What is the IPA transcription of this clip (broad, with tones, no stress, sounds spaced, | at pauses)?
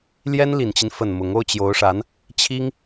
l j ɛ˥ n l i˨˩ n t͡ɕ i˦ n f ə˨˩ n m ʊ˧˥ ŋ o˥ ʊ̯ t͡ɕ j o˧˥ ʊ̯ ʂ a˧˥ n | t͡ɕʰ i˥ ŋ